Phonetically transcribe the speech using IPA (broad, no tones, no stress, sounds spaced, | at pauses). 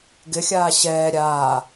ɡ ɪ xʲ aː ɕ ɛː ɾʲ aː